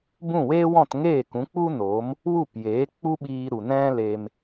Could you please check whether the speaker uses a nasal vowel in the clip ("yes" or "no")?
yes